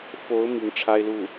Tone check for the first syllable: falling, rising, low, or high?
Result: rising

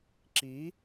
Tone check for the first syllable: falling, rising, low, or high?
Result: rising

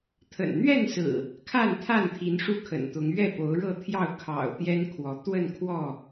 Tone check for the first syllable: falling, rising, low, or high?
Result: low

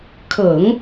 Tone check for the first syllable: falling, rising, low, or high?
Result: low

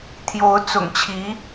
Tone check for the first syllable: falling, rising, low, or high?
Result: rising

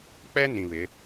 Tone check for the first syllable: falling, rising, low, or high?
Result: high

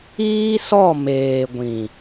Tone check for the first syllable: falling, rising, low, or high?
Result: high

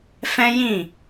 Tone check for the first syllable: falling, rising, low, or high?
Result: high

